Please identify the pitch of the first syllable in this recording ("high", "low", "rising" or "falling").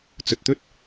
low